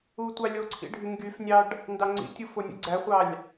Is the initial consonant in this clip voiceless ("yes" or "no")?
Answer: yes